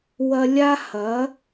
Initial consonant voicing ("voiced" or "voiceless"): voiced